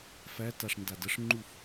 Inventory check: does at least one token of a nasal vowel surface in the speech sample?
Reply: no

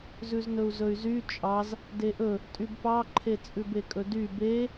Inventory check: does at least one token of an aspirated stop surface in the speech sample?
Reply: yes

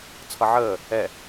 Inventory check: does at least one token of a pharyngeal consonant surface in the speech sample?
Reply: yes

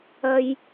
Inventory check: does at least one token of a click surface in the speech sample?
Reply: no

